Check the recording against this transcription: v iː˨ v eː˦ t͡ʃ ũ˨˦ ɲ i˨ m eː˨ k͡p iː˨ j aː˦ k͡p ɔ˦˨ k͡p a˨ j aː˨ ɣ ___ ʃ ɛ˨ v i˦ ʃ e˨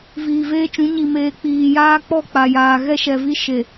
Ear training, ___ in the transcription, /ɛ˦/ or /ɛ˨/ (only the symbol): ɛ˦